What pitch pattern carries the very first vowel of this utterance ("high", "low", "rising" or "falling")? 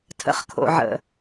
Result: low